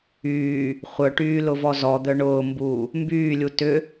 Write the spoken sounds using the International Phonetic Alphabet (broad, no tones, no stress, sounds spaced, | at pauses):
yː | χʷ œ ʈ yː l ʊ v ɔ z ɔ d̪ œ ɳ ʊː m b uː | m b yː lʲ u t ʏ